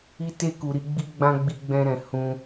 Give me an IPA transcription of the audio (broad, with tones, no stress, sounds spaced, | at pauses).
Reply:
i˧ t e˧ k u˨ ɾ i˧ ɡ͡b i˦ ɡ͡b ã˦ ɡ͡b i˧ ɡ͡b ɛ̃˧ ɾ ɛ̃˨ h ũ˧